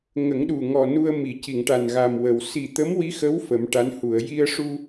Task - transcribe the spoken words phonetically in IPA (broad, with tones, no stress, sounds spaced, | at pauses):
ŋ ə˨˩˦ ŋ ɗ u˨˩ ŋ ɔ˨˩ n u˧ ə̯ m i˨˩˨ c i˨˩˨ ŋ ʈ a˨˩ n ɣ a˨˩ m w ə˨˩˨ w s i˨˩ t̪ ə˧˥ m w i˧˥ x ə˧˥ w f ə˨˩˦ m ʈ a˧˥ n h u˨˩˨ ə̯ j i˧ ə̯ ʂ u˧